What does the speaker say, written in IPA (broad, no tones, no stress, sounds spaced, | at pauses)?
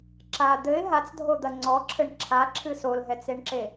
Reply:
ǁ a d̪ ɘ ɪ̯ ɦ a t͡s dʱ o d̪ ɐ ŋ͡ǀ ɔ ǁʰ ɘ ɳ ǁʰ a ǁʰ ɨ s o l ɦ ɛ t͡s e ɳ ǁ e